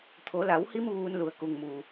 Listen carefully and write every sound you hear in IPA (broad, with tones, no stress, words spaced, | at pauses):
t̪ʰo˩˧la˩˧whi˧m ʋuː˧n lu˩˧ə̯ku˩ŋmuː˩